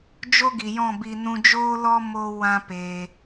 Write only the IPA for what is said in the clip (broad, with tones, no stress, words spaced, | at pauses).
d͡ʒo˦ɡi˨jɔ̃˦˨bi˧ nũ˧d͡ʒoː˦lɔ˦ mo˦ wã˦peː˧